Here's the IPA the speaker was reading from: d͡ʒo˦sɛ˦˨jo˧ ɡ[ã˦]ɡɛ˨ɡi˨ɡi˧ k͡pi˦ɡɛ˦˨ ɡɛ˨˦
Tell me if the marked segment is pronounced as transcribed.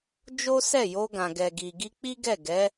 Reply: no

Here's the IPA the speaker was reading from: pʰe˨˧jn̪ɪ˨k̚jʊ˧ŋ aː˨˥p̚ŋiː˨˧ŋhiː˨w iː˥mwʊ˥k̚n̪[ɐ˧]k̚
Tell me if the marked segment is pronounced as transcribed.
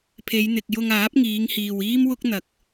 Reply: no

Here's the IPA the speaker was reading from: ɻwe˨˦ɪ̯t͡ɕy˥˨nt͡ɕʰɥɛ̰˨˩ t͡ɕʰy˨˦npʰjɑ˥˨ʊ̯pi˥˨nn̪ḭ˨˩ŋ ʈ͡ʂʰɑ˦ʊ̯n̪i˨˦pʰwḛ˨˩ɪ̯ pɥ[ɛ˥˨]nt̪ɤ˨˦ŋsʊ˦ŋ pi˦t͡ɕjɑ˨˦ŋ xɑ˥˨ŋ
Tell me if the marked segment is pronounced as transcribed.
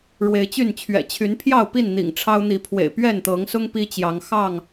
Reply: yes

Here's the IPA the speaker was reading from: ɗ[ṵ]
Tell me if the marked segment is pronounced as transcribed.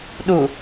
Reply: no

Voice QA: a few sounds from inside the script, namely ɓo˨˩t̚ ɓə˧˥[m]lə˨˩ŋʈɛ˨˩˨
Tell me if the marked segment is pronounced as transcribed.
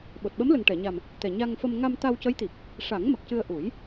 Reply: yes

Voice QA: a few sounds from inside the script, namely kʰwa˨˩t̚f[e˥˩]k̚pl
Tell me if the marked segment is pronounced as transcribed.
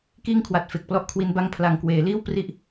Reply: no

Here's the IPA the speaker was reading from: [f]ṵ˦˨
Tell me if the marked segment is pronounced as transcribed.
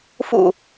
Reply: yes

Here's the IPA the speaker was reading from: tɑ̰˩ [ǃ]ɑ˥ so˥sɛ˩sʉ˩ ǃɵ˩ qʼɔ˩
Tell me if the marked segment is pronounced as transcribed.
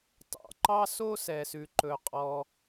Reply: yes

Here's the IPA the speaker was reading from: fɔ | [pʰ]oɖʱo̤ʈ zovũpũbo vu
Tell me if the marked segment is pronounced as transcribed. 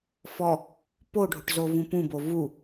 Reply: no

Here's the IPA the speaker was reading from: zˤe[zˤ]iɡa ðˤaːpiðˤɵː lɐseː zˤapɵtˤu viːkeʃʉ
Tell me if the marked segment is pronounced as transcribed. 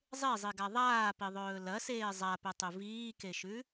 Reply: yes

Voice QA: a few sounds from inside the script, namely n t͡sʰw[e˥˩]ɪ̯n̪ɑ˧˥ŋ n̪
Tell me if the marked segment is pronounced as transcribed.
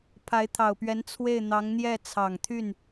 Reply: yes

